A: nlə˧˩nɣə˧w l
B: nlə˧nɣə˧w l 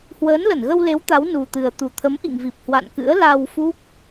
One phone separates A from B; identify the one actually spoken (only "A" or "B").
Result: A